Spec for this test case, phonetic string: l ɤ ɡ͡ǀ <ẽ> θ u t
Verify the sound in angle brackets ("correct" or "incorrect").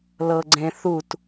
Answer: correct